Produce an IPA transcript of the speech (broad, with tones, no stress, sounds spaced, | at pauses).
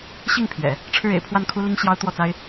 ɕ i˥˩ ŋ pʰ ɥ ɛ̰˨˩˦ | ʈ͡ʂʰ ɻ̩˥˩ ḛ˨˩ ɪ̯ pʰ w a˥˩ n kʰ u˥ l i˥ ŋ ɕ j ɑ˥ ʊ̯ t̪ w ɔ˥˩ t͡s a˥ ɪ̯